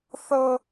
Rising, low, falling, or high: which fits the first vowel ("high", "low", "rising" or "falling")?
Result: high